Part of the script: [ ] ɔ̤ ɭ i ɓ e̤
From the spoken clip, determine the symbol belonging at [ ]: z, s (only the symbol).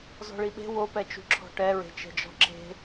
z